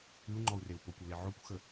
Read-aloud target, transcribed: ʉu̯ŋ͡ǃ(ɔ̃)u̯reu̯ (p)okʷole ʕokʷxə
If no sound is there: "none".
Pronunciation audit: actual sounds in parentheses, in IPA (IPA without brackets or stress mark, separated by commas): ɔ, p